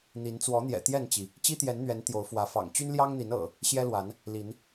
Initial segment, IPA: n̪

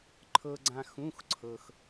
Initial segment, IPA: ǃʰ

